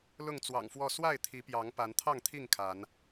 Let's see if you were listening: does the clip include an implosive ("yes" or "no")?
no